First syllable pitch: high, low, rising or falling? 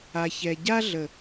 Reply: low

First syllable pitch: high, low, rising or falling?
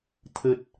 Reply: low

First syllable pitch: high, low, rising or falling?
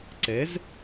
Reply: rising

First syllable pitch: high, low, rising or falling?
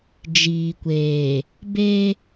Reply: low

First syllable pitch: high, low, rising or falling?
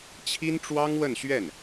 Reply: high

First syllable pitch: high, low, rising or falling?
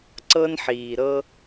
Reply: high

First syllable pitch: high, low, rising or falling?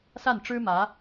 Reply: falling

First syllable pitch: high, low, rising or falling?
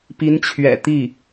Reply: rising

